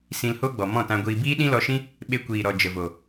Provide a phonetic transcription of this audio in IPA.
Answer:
sĩ˧lho˦ ɡ͡bɔ˨mɔ̃˦˨tã˧ɡʷiː˧ biː˦ɗĩ˦lɔ˧ʃĩ˦ | ɓe˧kʷiː˨ɾɔ˨ d͡ʒə˨vo˨

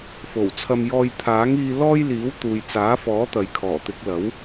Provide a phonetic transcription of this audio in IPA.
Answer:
fo˨˩wt͡sʰɐ˧mjɔː˧j t̪ʰaː˨˥ŋiː˧ lɔː˥j liː˨˥w t̪uː˨j t͡saː˨˥fɔː˨˥t̪ɐ˨j kʰɔː˨˩t̪ɪ˨˥k̚lɐ˨˥w

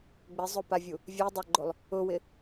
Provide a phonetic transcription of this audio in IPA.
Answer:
ɡ͡bɪzˤopavʲu | vʲɛdˤaɡ͡ǃolˠ | ʊwɪ

